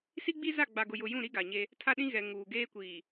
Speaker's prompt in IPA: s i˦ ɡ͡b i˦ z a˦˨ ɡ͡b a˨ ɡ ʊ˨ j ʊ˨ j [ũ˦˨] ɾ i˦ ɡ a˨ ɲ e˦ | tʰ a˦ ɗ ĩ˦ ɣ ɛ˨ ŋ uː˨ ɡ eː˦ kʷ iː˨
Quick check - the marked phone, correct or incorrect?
correct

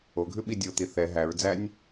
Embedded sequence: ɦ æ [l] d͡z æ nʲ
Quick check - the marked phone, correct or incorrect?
incorrect: ɹ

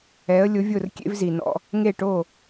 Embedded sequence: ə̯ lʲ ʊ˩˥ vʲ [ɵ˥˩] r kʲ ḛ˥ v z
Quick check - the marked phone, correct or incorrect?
incorrect: ʊ˥˩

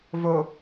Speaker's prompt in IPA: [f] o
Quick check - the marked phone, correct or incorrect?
incorrect: v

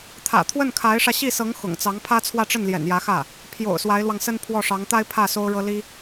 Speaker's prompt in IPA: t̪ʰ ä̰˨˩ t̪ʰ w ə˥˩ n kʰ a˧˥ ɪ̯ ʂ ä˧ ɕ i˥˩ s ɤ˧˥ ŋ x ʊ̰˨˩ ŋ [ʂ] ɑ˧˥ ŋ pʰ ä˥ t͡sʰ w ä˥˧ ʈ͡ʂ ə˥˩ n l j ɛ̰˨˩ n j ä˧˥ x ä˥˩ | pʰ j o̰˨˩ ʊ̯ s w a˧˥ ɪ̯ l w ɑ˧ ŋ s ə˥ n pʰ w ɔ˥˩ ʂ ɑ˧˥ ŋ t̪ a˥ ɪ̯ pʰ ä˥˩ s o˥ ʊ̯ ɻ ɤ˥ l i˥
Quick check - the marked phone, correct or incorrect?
incorrect: t͡s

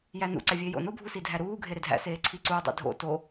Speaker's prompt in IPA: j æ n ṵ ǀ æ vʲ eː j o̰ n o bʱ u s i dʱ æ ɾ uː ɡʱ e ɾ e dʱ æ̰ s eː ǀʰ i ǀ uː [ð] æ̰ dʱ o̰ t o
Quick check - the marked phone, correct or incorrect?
incorrect: dˤ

